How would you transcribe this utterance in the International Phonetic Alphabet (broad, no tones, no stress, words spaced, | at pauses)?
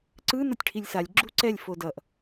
ǀɯ nʌtʲʈʰilʲsalʲ ɡ͡ǁuǀɛlʲ fodʌʔ